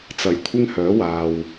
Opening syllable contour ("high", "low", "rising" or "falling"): low